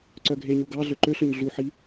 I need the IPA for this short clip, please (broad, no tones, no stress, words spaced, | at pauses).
ǀœɡʱeɲu ɡɑɮø ǃøɬøɲ ɮuħi